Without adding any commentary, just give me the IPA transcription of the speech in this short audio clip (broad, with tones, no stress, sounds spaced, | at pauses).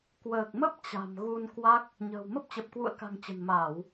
k w əː˨˩ k̚ m ə˦˥ p̚ t͡ɕ a̤˨˩ m ɣ u˧ n k w a˦˥ k̚ | ɲ ə̤ː˨˩ w m ə˦˥ p̚ t͡ɕ ə˨˩ p̚ k w ṵ˧˨ ə̯ k a̤˨˩ ŋ t͡ɕ ə̤˨˩ n m aː˧˩˨ w